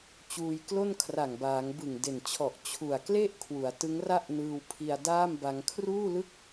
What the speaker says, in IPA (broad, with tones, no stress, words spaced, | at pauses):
t͡ɕuː˧jklo˥˩nkʰra˨˩ŋbaː˩˦ŋ bɯ˨˩ŋde˨˩nt͡ɕʰɔ˨˩ʔ t͡ɕʰu˨˩a̯kle˥˩ʔ kʰwu˩˦a̯tɯ˦˥ŋra˥˩ʔnɯː˧w pʰi˧a̯daː˥˩mba˧ŋ kʰruː˥˩lɯ˥˩k̚